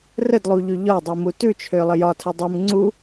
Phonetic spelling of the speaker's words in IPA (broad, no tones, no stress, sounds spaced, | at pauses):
r ə d lˠ u ʎ ʉ ʎ ɒ dˤ i m u t ʉ t͡ʃʰ ø lˠ ə j ɒ tʰ ə dˤ ʉ m ŋ͡ǀ u